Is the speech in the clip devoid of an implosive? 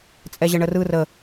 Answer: yes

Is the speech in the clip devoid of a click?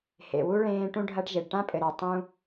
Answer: yes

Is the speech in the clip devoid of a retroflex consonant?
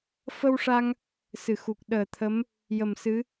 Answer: no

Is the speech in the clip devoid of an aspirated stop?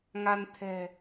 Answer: no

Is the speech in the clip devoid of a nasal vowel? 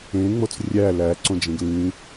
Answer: no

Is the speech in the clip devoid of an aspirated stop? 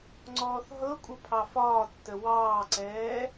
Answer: no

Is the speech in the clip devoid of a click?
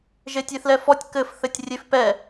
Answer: yes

